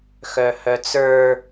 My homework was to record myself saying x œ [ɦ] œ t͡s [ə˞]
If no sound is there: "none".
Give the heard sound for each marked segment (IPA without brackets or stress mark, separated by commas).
h, ə˞